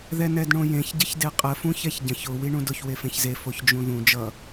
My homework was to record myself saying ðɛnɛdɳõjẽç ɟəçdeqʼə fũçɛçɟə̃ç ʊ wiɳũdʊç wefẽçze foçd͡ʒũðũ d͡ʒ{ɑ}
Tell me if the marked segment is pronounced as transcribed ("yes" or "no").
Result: no